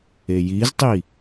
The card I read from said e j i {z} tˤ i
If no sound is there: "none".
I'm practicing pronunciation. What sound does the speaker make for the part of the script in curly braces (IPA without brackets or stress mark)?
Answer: z